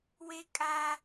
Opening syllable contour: high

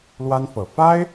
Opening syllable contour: high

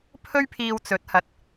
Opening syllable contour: high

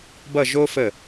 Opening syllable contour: falling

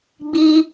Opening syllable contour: high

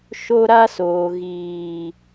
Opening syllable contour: high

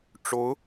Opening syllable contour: rising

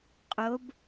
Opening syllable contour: rising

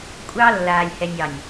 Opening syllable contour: high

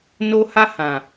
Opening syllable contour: high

